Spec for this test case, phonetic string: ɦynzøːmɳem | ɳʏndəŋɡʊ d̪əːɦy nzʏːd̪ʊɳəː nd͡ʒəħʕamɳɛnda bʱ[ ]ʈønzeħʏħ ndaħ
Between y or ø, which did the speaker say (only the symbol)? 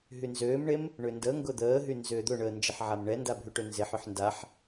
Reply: y